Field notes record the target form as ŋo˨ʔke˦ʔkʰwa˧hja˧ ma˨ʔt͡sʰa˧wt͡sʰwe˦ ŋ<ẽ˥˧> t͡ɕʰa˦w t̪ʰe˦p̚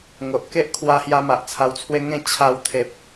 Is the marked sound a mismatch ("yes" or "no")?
no